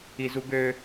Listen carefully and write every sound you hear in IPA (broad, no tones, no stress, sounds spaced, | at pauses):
i z u ɡ ø